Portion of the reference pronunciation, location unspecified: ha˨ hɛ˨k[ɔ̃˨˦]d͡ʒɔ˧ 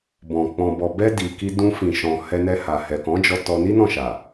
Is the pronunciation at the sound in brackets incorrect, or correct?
correct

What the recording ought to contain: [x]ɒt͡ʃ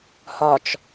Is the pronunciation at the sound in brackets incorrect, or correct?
incorrect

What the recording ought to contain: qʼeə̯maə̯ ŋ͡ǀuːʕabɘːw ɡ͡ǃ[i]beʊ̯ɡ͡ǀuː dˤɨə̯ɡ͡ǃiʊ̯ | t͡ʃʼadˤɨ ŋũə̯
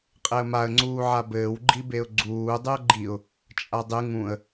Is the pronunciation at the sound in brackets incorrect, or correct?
correct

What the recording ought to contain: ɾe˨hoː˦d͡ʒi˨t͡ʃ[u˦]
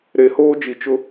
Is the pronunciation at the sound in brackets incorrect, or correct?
incorrect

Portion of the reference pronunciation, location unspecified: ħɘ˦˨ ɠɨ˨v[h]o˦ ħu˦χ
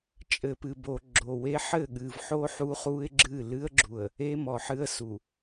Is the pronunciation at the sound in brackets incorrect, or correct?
incorrect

